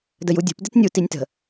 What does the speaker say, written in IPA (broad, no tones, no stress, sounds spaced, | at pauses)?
d ə j u dʲ ṳ p d ɪ t nʲ u t i nʲ t ə̤